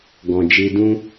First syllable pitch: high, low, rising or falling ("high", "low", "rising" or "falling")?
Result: low